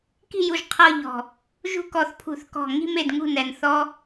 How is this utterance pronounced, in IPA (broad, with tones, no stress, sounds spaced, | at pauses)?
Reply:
k i̤˥˩ j u˧˩ ʒ qʰ ɤ˥˧ ʎ ɔ̤˧˩ | ʒ ṳ˦˥ k ɔ˧˩ θ pʰ ṳ˧˩˧ θ k ɔ̤˧˩ ŋ i̤˥˧ m e˥˩ d ŋ ṳ˥˩ n ɛ˧˩ n θ ɔ˦˥